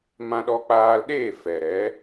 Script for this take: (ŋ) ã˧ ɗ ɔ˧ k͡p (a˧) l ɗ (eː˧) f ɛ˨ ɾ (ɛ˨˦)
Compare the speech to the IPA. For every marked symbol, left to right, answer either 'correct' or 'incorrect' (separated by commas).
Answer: incorrect, incorrect, incorrect, correct